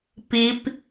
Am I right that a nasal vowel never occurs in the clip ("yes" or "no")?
yes